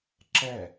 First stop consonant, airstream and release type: click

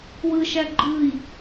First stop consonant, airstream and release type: click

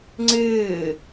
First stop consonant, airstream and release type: click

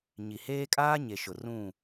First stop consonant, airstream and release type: ejective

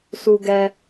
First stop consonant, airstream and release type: plain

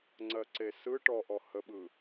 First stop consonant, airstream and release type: click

